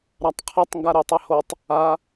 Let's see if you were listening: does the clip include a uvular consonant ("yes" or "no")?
yes